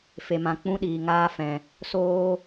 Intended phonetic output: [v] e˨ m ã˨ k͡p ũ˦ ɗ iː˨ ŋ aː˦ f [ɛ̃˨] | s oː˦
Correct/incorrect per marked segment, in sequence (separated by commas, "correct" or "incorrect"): incorrect, correct